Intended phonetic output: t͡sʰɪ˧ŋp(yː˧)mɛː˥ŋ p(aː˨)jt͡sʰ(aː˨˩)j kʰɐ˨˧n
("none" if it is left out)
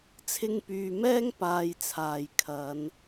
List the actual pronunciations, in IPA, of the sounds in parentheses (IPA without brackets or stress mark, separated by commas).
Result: yː˨, aː˧, aː˨